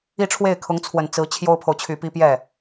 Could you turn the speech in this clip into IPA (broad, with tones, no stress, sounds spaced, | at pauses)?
i˥˧ ʈ͡ʂʰ w e˥˩ ɪ̯ kʰ ʊ˧˥ ŋ t͡sʰ w ə˨˩ n t͡s ɹ̩˧˥ t͡ɕʰ j o˥ ʊ̯ pʰ o˨ ʊ̯ t͡ɕʰ y˨˩ p i˥ p j ɛ˥˩